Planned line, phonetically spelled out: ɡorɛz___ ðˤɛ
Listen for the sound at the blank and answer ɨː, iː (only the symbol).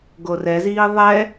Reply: iː